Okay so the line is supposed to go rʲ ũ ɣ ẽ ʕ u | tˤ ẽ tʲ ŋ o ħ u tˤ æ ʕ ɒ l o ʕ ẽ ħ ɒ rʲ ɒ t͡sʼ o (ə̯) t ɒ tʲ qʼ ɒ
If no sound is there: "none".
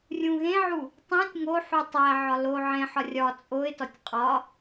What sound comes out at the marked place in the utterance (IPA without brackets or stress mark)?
ɪ̯